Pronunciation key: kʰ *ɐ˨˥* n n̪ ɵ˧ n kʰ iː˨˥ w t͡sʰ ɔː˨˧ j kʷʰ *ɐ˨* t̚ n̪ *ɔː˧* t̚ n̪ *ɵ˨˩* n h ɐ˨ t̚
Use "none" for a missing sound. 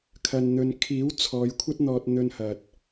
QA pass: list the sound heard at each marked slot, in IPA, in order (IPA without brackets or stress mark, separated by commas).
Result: ɐ˧, ɐ˥, ɔː˧, ɵ˧